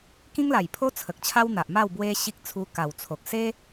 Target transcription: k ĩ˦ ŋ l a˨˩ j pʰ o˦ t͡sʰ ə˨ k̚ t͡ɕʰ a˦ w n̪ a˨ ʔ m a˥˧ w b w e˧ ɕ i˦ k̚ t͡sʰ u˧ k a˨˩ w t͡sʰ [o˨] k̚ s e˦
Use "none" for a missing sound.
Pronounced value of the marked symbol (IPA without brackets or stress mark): o˨